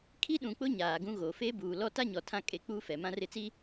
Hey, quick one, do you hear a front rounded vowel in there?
no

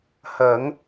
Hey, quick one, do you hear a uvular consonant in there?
no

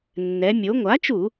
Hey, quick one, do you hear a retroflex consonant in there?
no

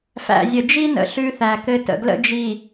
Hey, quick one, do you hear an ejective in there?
no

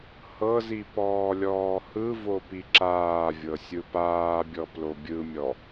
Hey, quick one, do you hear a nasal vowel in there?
no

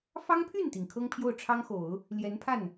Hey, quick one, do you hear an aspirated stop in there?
yes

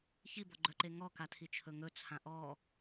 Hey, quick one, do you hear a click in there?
yes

